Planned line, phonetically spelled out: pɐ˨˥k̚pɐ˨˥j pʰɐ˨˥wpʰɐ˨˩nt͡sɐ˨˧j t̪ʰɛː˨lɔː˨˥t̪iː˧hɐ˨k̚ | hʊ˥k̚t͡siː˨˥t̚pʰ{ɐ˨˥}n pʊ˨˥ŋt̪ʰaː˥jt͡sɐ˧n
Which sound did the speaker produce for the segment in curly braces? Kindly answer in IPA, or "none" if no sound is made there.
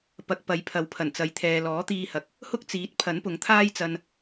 ɐ˨˥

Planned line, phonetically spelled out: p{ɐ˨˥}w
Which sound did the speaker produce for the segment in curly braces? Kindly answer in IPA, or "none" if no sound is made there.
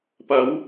ɐ˨˧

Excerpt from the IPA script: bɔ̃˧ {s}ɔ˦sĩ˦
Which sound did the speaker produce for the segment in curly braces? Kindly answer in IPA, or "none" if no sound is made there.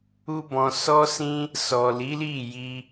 s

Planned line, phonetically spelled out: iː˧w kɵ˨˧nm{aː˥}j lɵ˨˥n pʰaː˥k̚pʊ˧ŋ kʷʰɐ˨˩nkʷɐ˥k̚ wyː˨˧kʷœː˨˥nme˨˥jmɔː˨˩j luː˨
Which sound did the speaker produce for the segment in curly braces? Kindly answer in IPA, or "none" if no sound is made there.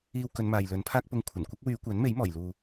aː˨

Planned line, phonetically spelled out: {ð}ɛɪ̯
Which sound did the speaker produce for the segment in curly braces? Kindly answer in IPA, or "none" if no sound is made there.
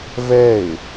v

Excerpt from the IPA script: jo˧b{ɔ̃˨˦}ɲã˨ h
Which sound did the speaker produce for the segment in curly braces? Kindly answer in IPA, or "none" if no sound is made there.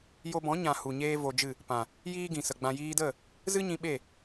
ɔ̃˨˦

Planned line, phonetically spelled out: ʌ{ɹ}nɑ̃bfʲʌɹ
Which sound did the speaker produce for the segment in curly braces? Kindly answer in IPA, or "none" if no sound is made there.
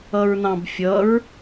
ɹ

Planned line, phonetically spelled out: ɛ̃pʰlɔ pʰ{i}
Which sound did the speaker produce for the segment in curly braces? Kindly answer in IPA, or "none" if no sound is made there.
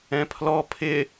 ɪ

